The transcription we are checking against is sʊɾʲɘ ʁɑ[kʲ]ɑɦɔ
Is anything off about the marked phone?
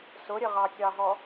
no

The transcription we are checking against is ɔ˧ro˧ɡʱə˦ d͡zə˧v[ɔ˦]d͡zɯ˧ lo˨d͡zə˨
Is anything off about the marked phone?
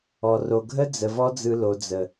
no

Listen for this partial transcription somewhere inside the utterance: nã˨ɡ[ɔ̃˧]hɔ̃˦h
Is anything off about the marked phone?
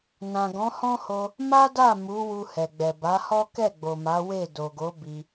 yes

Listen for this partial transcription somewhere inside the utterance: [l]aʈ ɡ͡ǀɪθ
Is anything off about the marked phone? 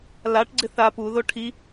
no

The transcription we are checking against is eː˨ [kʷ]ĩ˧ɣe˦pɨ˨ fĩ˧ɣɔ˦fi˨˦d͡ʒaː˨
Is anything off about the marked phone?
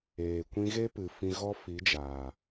no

